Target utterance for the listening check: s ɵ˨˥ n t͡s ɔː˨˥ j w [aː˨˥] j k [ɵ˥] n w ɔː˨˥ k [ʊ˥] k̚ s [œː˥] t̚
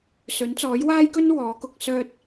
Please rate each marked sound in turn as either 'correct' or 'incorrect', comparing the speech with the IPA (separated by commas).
incorrect, correct, incorrect, correct